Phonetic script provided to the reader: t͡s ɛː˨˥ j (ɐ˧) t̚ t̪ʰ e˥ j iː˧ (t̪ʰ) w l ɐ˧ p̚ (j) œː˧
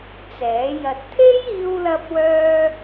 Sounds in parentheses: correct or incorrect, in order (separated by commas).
correct, incorrect, incorrect